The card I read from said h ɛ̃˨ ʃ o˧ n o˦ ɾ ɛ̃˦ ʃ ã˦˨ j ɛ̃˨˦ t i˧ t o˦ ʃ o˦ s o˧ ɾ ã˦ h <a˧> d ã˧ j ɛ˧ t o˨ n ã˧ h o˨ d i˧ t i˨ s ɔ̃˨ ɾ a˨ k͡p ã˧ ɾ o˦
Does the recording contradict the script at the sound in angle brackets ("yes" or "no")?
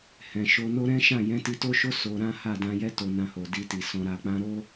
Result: yes